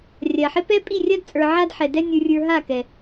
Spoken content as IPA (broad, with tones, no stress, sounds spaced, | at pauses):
rʲ a˨ ħ ɪ˧ p ɛ˦ pʼ i˦˨ rʲ a˦ d t͡sʼ ə˞˨ ʕ a˦ d ħ ɛ˨ d ɛ˦ nʲ ə˞˨ rʲ ə˞˨ ɦ a˦˨ k ɛ˨